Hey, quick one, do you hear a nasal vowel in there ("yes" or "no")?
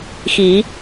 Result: no